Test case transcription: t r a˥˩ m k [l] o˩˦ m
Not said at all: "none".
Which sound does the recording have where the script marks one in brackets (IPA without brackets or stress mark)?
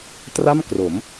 r